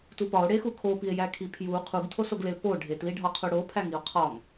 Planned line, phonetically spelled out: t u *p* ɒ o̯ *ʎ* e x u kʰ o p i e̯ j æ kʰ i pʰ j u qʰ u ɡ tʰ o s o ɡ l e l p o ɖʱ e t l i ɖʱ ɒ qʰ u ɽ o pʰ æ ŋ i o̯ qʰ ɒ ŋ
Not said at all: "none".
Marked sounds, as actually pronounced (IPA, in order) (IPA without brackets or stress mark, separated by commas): p, ɽ